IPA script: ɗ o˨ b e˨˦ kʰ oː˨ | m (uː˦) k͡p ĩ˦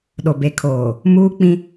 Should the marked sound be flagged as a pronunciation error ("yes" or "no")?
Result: no